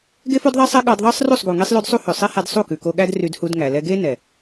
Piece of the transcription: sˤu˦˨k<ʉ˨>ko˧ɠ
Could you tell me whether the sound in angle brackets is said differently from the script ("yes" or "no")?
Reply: no